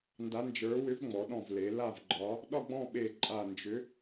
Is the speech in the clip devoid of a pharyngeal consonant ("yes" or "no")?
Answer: yes